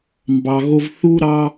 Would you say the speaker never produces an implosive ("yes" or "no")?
yes